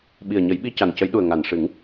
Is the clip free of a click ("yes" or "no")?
yes